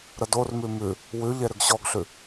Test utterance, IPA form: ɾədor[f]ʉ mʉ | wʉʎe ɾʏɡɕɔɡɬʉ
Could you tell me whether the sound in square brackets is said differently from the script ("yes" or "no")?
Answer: yes